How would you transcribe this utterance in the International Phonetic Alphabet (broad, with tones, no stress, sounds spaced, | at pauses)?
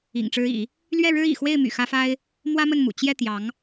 ḭ˨˩ ŋ ʈ͡ʂ ɻ̩˧˥ ḭ˨˩˦ | l ɥ ɛ˥˩ ɻ ɻ̩˥ ḭ˨˩ x w e˥˩ ɪ̯ m y̰˨˩ x ä˥ f a˥ ɪ̯ | m w ä˥ m ə˥˩ n m ṵ˨˩ t͡ɕ j ɛ˥˩ t̪ j ɑ˧˥ ŋ